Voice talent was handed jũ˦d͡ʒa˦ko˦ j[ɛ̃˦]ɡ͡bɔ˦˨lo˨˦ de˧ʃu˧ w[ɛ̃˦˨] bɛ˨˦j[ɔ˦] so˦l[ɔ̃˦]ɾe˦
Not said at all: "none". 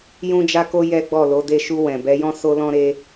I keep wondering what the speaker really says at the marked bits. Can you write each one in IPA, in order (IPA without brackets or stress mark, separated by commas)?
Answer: ɛ˦, ɛ̃˨, ɔ̃˦, ɔ̃˦